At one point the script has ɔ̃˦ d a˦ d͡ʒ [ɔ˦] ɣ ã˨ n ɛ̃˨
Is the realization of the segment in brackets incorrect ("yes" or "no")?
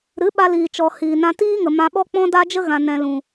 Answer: yes